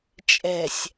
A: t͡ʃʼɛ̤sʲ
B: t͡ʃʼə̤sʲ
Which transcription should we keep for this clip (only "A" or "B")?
A